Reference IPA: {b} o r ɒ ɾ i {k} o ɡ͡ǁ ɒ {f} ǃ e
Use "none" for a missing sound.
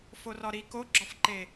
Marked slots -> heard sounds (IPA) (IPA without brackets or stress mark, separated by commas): f, k, f